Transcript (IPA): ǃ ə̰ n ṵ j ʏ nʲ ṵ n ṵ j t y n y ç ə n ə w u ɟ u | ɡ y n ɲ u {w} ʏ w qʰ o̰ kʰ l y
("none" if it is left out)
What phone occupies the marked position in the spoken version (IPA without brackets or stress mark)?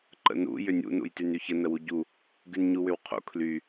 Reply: w